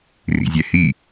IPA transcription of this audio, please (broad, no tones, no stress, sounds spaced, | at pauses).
r ḭ zʲ ɛ h i